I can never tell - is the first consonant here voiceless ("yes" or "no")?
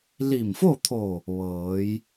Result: no